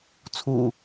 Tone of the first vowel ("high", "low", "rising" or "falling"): low